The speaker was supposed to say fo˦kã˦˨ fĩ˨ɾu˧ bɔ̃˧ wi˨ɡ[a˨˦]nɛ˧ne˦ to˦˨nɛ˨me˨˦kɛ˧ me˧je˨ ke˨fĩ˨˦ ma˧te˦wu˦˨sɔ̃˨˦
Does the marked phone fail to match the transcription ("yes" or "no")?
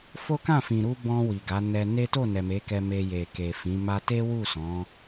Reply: no